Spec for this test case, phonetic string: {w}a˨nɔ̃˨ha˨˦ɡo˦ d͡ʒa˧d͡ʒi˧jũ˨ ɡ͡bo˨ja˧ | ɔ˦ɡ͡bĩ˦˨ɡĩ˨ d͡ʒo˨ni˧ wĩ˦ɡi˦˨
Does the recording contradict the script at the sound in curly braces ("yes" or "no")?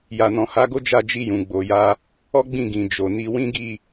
yes